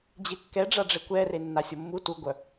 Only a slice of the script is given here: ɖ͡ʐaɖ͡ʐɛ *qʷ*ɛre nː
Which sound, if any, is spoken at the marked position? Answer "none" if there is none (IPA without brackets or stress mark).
kʷ